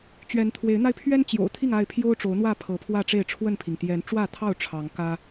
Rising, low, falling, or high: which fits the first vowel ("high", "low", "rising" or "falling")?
rising